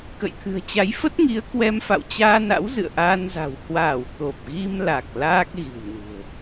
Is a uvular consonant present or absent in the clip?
absent